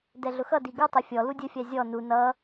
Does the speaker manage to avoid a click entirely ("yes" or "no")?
yes